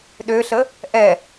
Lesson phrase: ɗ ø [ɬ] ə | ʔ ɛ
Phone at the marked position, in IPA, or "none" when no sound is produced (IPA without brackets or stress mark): ɬ